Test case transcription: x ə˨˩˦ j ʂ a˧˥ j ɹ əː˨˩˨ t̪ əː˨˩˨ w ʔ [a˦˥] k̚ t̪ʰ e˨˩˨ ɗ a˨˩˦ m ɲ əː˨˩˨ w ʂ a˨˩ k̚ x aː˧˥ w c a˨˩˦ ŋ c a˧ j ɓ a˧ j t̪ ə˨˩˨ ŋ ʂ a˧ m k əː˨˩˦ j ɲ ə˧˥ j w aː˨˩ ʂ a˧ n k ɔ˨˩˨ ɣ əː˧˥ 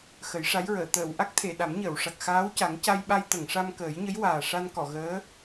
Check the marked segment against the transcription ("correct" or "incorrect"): correct